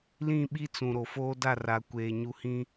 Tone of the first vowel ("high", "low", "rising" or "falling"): falling